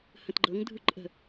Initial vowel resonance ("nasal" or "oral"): nasal